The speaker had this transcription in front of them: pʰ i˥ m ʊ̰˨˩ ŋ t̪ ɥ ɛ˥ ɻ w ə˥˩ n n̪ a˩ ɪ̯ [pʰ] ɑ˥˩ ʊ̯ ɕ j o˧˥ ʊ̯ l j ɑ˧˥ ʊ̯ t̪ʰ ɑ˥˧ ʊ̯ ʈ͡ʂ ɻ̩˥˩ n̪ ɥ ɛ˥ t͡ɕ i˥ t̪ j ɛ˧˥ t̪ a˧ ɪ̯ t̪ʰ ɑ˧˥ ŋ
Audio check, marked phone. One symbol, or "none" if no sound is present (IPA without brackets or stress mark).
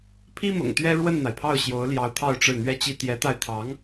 pʰ